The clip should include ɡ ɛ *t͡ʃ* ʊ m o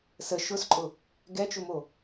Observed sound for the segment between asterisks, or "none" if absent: t͡ʃ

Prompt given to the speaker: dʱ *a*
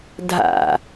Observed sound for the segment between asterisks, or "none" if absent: a̰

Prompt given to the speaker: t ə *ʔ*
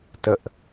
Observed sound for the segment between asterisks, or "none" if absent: ʔ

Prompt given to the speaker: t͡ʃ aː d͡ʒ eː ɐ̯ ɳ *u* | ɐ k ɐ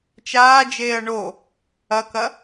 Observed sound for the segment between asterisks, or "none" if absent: o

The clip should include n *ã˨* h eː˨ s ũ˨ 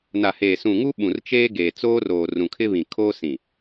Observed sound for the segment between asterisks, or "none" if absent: a˨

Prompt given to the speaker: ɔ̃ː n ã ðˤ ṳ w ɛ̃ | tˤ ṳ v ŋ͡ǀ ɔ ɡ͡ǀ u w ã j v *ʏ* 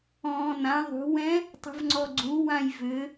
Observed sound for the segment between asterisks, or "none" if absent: ʏ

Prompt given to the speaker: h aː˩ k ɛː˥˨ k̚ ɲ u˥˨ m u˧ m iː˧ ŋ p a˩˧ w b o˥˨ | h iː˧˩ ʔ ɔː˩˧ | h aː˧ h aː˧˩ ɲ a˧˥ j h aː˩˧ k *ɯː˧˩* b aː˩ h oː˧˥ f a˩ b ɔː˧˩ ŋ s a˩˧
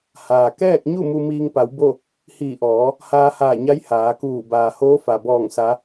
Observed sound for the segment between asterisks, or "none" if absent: uː˧˩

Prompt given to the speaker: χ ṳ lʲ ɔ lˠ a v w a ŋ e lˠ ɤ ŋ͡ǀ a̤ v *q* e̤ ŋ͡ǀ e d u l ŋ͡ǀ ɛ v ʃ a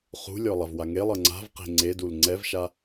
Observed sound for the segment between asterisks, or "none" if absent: q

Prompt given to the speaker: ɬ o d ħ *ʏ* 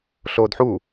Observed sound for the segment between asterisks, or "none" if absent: u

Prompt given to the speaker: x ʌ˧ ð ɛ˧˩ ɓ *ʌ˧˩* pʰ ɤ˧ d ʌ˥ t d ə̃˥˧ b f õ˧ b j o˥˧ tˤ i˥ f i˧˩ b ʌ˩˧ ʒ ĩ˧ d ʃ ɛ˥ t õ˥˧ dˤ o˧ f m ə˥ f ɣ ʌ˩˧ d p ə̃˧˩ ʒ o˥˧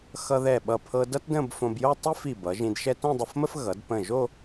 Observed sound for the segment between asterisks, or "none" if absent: ʌ˧˩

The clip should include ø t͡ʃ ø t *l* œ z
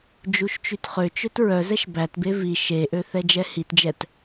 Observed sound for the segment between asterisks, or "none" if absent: ɹ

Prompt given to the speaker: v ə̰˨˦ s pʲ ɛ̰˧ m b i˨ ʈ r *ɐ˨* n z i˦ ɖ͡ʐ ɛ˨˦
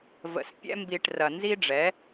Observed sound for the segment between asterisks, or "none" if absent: ɐ˨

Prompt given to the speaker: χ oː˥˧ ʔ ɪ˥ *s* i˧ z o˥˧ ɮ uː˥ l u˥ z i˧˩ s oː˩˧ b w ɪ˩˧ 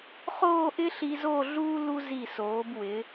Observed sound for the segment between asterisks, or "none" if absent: ɬ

